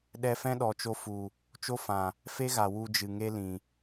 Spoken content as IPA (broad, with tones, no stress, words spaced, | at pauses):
ɗɛ˧fɛ̃˦ɗɔ˨t͡ʃo˧ fu˨ | t͡ʃo˦fã˨ | fe˦ɣa˨ wu˧d͡ʒɨ˨ ŋe˦lĩ˨